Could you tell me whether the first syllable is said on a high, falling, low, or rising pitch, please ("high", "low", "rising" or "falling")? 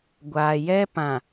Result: low